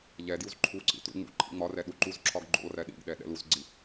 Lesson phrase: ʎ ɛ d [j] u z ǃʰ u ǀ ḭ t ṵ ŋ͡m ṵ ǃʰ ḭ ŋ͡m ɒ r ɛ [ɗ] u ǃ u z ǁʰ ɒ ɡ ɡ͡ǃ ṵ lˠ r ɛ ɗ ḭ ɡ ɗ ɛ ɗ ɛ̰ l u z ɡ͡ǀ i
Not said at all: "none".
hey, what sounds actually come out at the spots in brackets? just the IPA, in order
j, ɗ

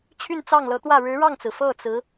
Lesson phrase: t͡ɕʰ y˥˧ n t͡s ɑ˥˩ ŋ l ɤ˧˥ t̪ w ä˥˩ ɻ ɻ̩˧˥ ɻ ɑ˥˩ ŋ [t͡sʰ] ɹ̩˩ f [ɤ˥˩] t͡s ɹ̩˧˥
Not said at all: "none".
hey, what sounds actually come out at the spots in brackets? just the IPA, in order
t͡s, ɤ˥˩

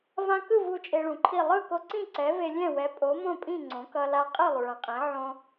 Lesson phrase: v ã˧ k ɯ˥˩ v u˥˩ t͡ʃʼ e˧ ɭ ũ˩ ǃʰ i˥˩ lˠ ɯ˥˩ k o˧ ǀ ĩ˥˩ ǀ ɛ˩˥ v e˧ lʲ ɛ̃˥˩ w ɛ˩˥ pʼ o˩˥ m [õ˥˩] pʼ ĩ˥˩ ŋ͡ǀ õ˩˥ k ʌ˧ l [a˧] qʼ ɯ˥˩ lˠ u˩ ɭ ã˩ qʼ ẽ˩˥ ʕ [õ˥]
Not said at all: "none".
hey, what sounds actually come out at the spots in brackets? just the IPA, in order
õ˥˩, a˧, õ˧

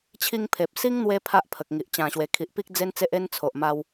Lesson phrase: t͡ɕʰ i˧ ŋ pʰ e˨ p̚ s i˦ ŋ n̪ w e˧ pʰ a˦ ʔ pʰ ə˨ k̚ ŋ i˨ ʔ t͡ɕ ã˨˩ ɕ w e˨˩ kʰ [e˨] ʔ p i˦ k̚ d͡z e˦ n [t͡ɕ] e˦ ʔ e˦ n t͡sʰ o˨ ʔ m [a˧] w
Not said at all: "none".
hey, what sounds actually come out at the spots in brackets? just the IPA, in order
i˨, t͡s, a˧

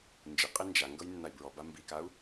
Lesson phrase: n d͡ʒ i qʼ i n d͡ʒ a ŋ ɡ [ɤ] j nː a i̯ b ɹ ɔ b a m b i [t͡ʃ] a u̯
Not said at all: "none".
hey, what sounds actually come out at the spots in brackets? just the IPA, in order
ɤ, k

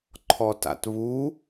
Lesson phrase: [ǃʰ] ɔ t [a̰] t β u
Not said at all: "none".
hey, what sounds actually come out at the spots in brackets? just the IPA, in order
ǃʰ, a̰

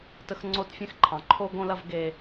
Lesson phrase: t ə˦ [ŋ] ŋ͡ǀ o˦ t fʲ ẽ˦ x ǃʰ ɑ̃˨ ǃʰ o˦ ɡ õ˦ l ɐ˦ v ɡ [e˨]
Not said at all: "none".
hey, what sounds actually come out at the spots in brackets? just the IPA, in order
x, e˦

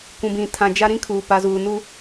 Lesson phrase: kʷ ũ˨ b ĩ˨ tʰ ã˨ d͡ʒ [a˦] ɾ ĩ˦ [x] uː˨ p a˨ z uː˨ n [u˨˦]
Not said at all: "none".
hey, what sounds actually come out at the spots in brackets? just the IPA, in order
a˦, kʰ, u˦

